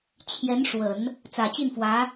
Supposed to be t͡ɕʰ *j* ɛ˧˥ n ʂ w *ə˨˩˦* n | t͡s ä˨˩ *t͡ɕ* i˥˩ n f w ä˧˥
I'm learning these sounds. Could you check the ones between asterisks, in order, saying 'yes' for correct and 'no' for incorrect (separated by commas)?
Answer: yes, yes, yes